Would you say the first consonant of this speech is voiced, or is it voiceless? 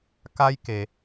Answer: voiceless